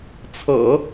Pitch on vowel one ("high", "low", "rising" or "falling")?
low